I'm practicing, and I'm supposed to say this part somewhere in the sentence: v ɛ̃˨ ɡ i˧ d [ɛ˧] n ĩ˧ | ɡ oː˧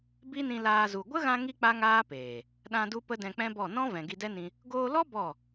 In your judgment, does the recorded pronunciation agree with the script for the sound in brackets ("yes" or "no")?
no